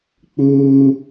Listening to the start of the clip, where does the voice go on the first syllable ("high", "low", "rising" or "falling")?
high